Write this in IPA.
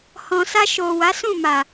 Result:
h ɔ̃˨ s a˧ ʃ o˨ w a˨˦ s ũ˦˨ m a˨

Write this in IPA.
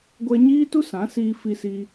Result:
ɡʷ ɛ˦ ɲ iː˦ t u˦ s ã˨˦ s iː˧ f i˧ s iː˧

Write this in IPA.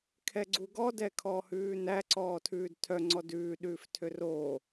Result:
kʰ ɛ ɡ͡ǀ u ɡ ɔ d ɛ kʰ ɔː h ʉː n æ ǀ ɔː tʰ ʉː d tʰ œ ŋ͡ǀ ɔ d ʉː ɗ ʉː f tʰ ø r oː

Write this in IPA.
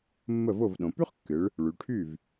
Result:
mː ə˥˩ v o˥˩ v ɗ õ˩˧ p y˥ χ kː ɨ˩˧ ɭ | ɭ y˩˧ ʈʰ y˥˩ v

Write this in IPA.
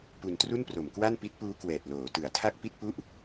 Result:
p u˧ n t r u˥˩ n p r o˨˩ m k w a˥˩ n p i˦˥ t̚ p uː˦˥ k w ɛː˨˩ t̚ l oː˩˦ t ɯ˩˦ a̯ tʰ a˥˩ k̚ p i˥˩ t̚ p u˥˩ ʔ

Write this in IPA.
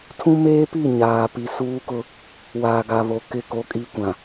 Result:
tʰ ũ˦ m eː˦ p i˦˨ ɲ aː˨ p i˨ s uː˦ k ʊ˦ | w aː˨ ɡ a˨ β o˨ k ɪ˦˨ k o˦ kʼ i˦ kʷ ã˨

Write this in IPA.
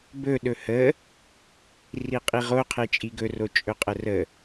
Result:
b ɵ ɗ ɵ h ə | r i qʼ i ʁ o qʰ e t͡ʃʼ i ɡ ɵ r o t͡ʃʼ ɵ qʼ ə r ə

